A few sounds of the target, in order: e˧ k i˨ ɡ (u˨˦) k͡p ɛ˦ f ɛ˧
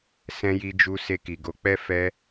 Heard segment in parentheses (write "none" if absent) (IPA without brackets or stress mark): o˨˦